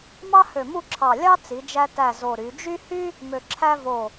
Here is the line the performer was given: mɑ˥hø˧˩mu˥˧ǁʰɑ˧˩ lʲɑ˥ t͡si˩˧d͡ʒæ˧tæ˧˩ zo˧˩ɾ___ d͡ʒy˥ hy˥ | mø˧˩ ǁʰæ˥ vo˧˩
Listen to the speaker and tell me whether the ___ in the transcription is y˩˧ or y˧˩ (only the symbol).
y˩˧